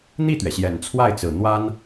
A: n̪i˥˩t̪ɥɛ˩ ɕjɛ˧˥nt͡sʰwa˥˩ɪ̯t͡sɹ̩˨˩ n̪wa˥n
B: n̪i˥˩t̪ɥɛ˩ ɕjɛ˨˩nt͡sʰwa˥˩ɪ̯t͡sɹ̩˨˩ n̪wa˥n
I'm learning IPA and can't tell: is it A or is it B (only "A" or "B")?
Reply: B